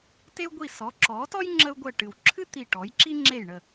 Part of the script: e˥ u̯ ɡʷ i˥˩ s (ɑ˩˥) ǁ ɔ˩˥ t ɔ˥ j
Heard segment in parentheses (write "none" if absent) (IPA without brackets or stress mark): ɔ˩˥